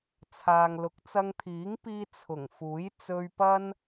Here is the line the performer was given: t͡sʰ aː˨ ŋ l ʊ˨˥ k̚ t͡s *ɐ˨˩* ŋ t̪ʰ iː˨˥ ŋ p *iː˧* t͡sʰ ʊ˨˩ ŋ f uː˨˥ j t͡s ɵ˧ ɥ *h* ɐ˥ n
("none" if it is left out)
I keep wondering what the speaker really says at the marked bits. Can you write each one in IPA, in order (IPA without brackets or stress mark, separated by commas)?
ɐ˧, iː˧, p